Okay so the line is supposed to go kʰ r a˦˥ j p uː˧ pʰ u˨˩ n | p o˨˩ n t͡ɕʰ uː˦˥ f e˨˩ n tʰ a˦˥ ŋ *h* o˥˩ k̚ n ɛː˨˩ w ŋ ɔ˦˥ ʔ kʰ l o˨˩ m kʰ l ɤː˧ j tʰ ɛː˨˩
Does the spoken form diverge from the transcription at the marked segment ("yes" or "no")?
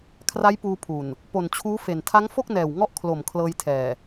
yes